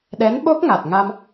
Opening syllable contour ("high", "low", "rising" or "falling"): rising